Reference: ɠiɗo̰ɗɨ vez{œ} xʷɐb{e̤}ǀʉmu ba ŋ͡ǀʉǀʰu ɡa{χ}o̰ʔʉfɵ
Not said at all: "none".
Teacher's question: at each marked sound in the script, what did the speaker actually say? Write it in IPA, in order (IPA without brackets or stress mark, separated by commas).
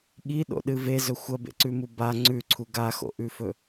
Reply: ɵ, ḛ, x